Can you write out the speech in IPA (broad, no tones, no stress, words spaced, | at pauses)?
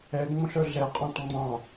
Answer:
ɛŋ͡mõɬ œɮɛqʼɔ̃t ŋ͡mɑ̃